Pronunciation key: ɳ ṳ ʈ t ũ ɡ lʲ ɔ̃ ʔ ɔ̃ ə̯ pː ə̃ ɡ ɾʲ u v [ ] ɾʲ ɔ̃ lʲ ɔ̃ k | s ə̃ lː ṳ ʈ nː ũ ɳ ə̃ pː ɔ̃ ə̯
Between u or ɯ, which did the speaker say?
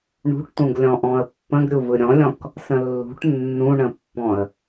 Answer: ɯ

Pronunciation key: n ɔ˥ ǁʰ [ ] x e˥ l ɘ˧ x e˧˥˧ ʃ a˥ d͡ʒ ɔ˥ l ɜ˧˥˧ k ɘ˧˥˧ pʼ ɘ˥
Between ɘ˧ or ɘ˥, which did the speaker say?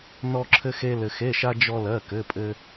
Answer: ɘ˥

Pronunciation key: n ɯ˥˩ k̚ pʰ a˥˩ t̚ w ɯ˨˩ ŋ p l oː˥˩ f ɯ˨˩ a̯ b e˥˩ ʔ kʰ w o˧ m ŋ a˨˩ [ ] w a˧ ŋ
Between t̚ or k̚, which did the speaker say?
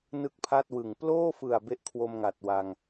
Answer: t̚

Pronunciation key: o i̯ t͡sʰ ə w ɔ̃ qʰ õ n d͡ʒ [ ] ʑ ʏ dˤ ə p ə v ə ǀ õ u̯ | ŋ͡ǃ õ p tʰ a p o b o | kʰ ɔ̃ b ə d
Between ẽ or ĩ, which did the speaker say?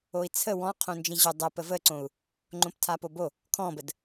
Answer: ĩ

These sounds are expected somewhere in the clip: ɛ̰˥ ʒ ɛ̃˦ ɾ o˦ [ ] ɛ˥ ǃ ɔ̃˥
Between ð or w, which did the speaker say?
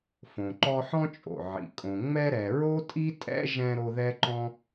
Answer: ð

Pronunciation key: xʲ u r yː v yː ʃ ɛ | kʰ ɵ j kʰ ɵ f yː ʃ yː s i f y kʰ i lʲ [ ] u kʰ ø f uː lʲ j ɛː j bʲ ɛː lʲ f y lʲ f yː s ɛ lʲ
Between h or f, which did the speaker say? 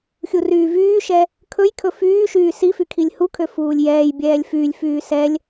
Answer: h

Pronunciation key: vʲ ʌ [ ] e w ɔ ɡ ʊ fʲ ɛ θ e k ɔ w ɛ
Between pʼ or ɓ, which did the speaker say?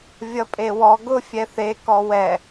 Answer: pʼ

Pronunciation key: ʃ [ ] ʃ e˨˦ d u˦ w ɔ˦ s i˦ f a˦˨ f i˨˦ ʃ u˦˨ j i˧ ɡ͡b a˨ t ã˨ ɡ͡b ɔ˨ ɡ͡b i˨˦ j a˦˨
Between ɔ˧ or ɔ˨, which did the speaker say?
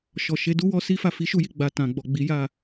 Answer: ɔ˨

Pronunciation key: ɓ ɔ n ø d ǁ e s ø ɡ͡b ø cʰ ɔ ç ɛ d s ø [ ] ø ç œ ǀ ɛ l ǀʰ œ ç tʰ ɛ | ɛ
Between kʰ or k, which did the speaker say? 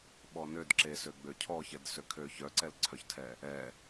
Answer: kʰ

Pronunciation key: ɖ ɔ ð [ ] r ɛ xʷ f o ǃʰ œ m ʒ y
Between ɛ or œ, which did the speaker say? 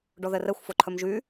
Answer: ɛ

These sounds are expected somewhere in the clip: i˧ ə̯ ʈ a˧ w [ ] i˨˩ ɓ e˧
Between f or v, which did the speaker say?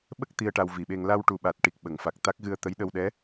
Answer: v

